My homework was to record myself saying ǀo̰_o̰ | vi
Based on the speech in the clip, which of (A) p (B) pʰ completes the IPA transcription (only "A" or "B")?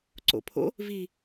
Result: B